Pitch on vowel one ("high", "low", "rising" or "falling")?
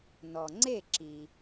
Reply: low